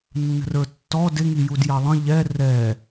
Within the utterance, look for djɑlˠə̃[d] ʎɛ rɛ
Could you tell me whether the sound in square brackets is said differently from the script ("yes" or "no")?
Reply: yes